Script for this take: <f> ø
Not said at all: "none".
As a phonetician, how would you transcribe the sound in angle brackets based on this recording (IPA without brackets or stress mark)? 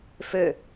f